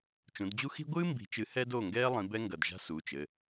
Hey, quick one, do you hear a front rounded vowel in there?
no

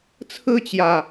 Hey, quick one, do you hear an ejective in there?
no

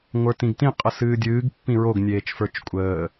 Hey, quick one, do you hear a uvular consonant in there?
yes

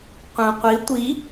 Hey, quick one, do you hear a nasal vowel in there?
yes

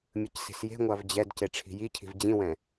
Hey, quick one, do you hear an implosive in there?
no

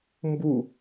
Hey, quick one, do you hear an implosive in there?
no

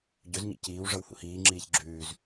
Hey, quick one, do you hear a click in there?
yes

